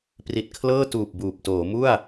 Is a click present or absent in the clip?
absent